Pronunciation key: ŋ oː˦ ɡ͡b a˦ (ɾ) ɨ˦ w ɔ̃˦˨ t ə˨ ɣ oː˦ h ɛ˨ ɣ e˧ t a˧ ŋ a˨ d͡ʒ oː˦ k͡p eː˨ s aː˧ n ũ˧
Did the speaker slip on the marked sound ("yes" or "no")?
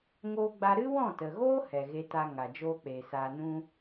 no